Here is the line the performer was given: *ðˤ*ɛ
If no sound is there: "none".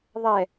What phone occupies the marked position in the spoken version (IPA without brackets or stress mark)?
ðˤ